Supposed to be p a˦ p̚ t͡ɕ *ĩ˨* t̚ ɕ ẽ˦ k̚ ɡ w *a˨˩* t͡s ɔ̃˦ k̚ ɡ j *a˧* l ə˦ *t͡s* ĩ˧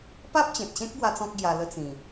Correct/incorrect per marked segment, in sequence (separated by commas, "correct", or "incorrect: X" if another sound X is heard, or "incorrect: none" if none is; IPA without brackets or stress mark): incorrect: ẽ˨, incorrect: a˦, correct, correct